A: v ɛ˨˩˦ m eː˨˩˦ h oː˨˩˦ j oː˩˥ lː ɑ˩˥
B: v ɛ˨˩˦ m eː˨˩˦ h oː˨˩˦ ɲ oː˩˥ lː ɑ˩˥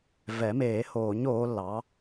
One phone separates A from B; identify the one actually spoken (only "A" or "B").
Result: B